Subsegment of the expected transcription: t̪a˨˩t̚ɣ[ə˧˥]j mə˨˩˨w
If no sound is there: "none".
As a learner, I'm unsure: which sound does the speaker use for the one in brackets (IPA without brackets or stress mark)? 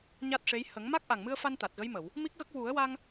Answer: ə˧˥